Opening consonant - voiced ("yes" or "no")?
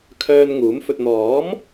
no